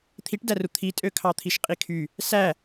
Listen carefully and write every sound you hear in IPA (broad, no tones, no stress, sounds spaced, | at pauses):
t̪ʰ i ʈ d æ r u t̪ʰ i tʼ ø kʰ ɑ t̪ʰ i ʃ qʼ i kʰ y | s æ